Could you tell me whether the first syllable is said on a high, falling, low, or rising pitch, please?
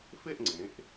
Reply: falling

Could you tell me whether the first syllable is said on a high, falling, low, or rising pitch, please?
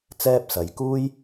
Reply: high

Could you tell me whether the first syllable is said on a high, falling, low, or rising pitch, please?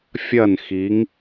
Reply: falling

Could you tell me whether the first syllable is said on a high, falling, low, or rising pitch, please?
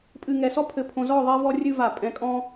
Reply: low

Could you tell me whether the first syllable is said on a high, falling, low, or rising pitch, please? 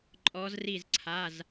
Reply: rising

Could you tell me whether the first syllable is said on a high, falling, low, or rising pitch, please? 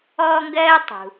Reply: high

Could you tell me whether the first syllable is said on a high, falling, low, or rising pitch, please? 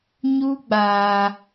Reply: high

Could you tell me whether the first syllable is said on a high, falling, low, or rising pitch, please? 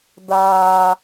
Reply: high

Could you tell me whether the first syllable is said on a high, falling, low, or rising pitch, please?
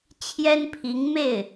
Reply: high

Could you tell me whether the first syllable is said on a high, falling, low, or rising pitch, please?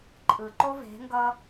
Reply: low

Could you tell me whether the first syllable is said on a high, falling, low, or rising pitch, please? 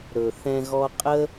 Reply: low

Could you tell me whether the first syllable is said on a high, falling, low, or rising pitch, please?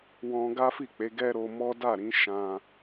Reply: high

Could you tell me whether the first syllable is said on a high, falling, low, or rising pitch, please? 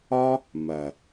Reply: high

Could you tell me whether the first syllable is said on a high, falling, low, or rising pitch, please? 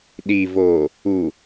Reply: low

